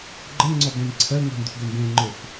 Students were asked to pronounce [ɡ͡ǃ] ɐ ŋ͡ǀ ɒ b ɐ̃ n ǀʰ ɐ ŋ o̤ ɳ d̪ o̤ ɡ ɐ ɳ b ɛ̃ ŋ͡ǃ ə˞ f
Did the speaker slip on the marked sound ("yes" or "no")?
no